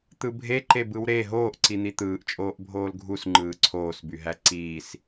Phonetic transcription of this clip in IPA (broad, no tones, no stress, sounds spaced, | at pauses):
t̪ ɯ bʱ e ǃ e b ɯ w ɾ e ɦ oː ʔ ǀ i n̪ i t̪ ɯː ʔ t͡ʃʼ oː ʔ bʱ oː l ɡʱ u s ŋ͡ǃ ɯː ǀʰ oː s b y ɦ æ ǀ iː s